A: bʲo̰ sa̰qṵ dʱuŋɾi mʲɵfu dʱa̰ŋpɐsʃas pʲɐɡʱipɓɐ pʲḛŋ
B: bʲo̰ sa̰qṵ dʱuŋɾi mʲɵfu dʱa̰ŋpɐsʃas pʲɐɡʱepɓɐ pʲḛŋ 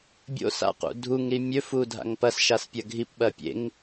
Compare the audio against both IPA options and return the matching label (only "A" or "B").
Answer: A